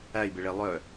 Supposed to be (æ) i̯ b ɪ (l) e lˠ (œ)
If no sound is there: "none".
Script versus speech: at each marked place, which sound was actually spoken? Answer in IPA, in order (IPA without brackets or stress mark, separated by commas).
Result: æ, ɭ, œ